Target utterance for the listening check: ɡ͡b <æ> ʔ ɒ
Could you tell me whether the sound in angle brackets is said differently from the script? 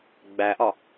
no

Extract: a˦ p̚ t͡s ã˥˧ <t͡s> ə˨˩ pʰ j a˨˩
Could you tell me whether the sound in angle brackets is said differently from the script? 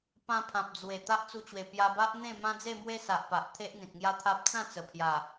no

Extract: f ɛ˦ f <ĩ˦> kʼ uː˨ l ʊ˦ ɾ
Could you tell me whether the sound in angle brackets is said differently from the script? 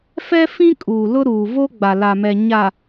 no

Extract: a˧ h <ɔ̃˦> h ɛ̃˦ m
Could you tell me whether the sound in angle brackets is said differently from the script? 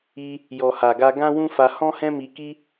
no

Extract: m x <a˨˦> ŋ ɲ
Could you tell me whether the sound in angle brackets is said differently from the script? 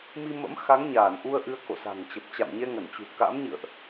no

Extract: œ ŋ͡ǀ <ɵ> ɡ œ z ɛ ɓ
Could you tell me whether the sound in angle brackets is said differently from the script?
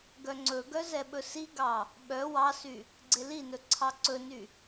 no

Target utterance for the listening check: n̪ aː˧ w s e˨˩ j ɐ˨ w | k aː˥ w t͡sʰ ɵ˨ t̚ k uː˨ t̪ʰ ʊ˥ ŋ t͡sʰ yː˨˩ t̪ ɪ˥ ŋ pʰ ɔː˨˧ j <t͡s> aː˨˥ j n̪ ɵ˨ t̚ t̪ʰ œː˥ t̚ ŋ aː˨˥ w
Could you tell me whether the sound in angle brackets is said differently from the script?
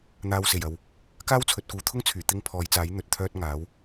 no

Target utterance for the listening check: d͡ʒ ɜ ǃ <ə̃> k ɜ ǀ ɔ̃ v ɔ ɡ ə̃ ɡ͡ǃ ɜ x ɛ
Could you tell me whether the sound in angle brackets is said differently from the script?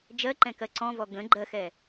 yes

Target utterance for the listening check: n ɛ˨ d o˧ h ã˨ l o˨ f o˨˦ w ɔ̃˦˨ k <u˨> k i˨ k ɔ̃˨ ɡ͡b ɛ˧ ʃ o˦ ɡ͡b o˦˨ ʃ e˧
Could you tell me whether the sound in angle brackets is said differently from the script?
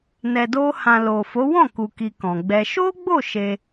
no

